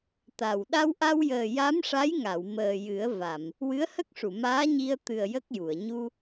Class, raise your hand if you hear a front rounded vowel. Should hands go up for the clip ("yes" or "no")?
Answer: no